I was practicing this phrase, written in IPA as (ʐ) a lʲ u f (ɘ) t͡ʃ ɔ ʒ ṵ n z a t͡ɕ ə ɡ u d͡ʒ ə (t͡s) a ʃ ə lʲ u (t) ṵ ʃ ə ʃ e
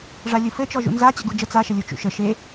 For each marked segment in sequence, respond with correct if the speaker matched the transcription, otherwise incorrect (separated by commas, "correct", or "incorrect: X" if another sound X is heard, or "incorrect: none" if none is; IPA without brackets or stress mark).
correct, correct, correct, incorrect: t͡ʃ